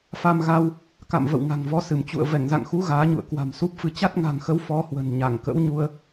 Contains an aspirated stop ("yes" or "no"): no